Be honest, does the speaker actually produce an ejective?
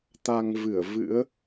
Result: no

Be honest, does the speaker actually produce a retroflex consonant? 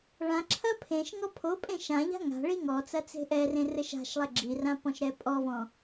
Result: yes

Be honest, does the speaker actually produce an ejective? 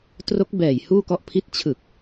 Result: no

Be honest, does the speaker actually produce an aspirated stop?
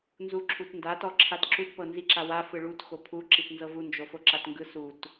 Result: yes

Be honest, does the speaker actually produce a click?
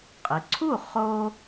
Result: yes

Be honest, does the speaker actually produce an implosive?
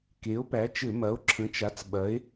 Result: yes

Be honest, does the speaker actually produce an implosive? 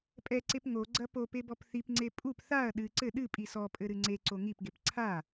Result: yes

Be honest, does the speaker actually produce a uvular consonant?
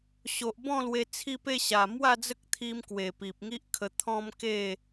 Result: no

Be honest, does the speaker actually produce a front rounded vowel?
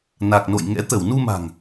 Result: no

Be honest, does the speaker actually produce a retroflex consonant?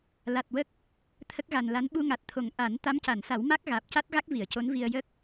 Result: no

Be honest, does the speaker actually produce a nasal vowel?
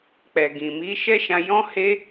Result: yes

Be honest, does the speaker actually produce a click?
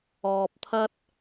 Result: no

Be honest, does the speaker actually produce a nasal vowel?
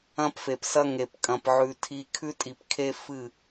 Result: yes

